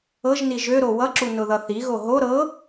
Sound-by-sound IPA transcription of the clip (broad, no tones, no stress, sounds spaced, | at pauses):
ɤ ʒ n i ʒ ø ɾ o w ʌ ǁ u n ʊ ð ʌ θ i ɣ o ɦ o ɾ ɤ